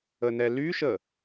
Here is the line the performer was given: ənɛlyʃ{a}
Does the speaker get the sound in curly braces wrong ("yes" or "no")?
yes